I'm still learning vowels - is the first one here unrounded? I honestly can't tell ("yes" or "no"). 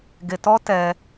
yes